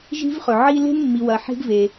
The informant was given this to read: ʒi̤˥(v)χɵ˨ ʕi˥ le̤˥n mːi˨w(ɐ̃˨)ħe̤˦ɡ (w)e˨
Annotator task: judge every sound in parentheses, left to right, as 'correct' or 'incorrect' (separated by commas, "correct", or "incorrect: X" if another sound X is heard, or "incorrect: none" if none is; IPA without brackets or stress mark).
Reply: correct, incorrect: ɐ˨, incorrect: v